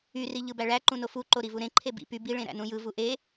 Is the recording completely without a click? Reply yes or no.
no